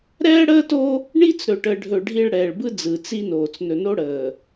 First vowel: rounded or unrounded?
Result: unrounded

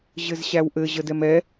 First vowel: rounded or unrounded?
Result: unrounded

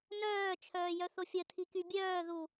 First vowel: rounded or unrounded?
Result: rounded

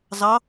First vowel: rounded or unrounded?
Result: unrounded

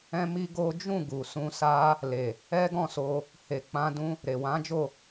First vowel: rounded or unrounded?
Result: unrounded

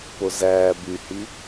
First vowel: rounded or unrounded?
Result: rounded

